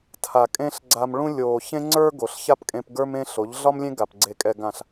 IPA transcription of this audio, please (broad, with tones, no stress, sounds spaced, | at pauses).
tʰ a˨ kʼ ẽ˦ ɬ ɡ͡ǀ a˧ m ɭ ũ˦ lʲ oː˨ ç ẽ˦ ŋ͡ǀ ə˞˦ ɡ o˨ ɬ ç a˦ p kʼ ẽ˧ p ɡ ə˞˧ m ẽ˧ ɬ o˨˦ ʎ ɮ ɒ˦ m lʲ ẽ˦ ɡ a˨ p ɡ͡ǀ e˨ kʼ ɛ˨ ɡ ã˨ ɬ